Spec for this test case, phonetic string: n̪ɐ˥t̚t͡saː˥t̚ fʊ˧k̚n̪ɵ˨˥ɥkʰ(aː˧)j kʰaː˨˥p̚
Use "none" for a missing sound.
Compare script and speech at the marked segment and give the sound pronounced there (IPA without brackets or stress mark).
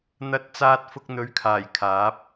aː˨˩